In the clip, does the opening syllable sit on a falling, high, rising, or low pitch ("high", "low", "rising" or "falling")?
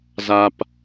high